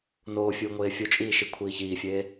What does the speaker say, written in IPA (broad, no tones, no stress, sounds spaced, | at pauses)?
n oː fʲ uː ŋʷ eː fʲ u t͡ʃʼ iː ʃ i kʷʰ iː ç iː fʲ eː